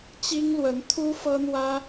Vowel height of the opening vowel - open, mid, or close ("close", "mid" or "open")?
close